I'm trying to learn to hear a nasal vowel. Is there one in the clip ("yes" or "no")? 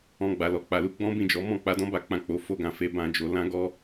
yes